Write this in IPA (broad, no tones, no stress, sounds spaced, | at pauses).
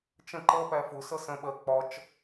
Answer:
t͡ʃ ə̃ ǃ ʌ p æ f ʊ s ʌ s ə̃ ɓ ɜ k͡p ɒ t͡ʃ